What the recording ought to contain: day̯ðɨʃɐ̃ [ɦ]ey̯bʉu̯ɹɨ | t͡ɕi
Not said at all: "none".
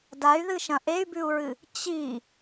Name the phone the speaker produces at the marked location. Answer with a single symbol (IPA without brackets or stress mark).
ʔ